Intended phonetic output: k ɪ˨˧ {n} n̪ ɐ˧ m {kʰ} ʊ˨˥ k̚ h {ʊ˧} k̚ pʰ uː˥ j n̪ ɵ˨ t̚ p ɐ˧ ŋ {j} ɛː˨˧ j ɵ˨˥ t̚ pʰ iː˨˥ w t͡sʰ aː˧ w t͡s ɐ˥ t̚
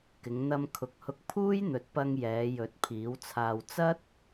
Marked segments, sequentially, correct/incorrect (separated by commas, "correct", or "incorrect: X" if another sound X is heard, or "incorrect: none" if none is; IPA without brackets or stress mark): incorrect: ŋ, correct, correct, correct